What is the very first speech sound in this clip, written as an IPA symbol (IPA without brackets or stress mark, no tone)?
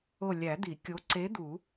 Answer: o